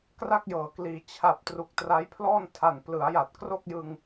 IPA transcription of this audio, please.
k r a˥˩ k̚ j ɤː˩˦ k l iː˩˦ t͡ɕʰ a˨˩ p̚ t r u˨˩ k̚ t r a˦˥ j pʰ l ɔː˥˩ n tʰ a˨˩ n p l ɯ˩˦ a̯ j a˨˩ t̚ k r o˥˩ k̚ j ɯ˧ ŋ

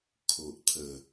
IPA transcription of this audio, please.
kʰ o˨ ʔ t̪ʰ ə˨˩

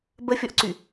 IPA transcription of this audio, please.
b ə fʲ ɔ ʔ ǀ y

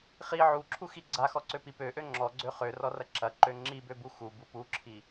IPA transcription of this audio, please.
χ i ʕ u ǁʰ u x i ɡ͡ǀ a x ɔ ǀ ø p i p ø ʔ ø ŋ͡ǁ ɔ ɡ͡ǀ ø χ ø r ɔ r ɐ ǁ ɐ ǃ ø ŋ͡ǁ i b ø b u x u b u p u ǁʰ i

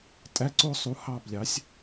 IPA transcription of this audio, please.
tʼ æ˧˥˧ ǀ o˦˨ sˤ u˨˥ h ɑ˦˨ b lʲ ɑ˨˥ sʲ

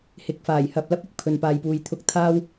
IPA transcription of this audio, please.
h ɪ˨ k̚ f aː˨˩ j h ɐ˨ p̚ l ɐ˥ p̚ ɪ˨ k̚ pʰ ɵ˨ n p aː˨ j p uː˨ j t̪ʰ ʊ˧ k̚ t̪ʰ aː˥ w

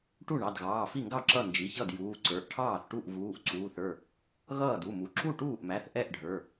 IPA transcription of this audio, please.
ʈ u˥˩ ɳ ɑ˩˧˩ d ɣ ɑː˩˧˩ f i˥˩ ŋ ɡ ɑ˥˩ ǁ ʌ˥˩ n d͡ʒ i˩˧˩ ç ʌ˥˩ d j uː˩˧˩ ǀ ə˞˩˧˩ ʔ ʈʰ ɑː˥˩ θ ʈ u˥˩ ʔ v uː˩˧˩ ʔ ǀ uː˩˧˩ θ ə˞˥˩ | ɣ ʌː˥˩ d u˩˧˩ m u˩˧˩ ǁ u˥˩ ʈ uː˥˩ ʔ m æ˩˧˩ θ ʔ ɛ˥˩ ʔ ɖʱ ə˞˩˧˩

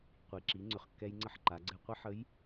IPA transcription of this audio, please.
qʷ i˩ ǁ i˩˧ ŋ͡ǀ ʏ˩ χ kː ɛ˧ j ŋ͡ǀ ə˧ ħ ǃ a˩˧ ɡ͡ǀ ɛ˧ qʷ ə˧ ħ ə˧˥ j

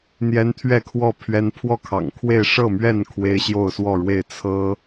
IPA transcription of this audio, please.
n̪ j ɛ˦ n t̪ʰ ɥ ɛ˥˨ kʰ w ɔ˥˨ pʰ ɥ ɛ˦ n pʰ w ɔ˥˨ kʰ ɑ̰˨˩ ŋ kʰ w e˥˨ ɪ̯ ʂ ɤ˥˨ m ɥ ɛ˥˨ n kʰ w e˦ ɪ̯ ɕ j o˥˨ ʊ̯ s w ɔ˥˨ ɻ w e˥˨ ɪ̯ t͡sʰ ɤ˦

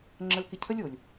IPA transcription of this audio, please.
ŋ͡ǁ ə˧ l k ɪ˧ cʰ ə˦ lʲ o˨ lʲ

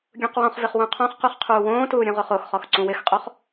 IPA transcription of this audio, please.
ɡʲ ũ q w ɔ̃ χ v ɪ χ w ũ qʰ ɔ̃ χ q u χ qʰ uː w õː t uː ɾʲ ũ ʁ o χ o x χ ɔ x ǀ ũ w ɪ x qʼ o χ

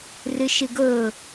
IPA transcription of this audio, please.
r ɯ ʃ ɯ ɡ o

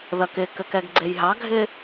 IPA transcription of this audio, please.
ð ɐ k ɪ k ɘ k ɛ ɡ ɡ͡ǀ e j ɦ ɑ ɡʱ ɪ

